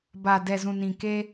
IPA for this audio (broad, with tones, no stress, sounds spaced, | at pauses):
b a˨ d ɛ˨ z ũ˨ n ĩ˨ k e˦